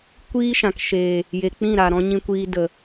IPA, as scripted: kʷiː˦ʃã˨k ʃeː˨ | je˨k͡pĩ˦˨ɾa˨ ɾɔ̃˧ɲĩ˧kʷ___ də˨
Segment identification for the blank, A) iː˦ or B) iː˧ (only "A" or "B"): B